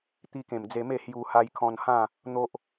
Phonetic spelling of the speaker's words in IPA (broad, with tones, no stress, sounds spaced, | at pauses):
t̪ i˧ k ẽ˨˩ m d͡z e˧ m e˥˧ h j u˧ h a˧ j kʰ ɔ̃˧ n h ã˥˧ | n̪ o˦ ʔ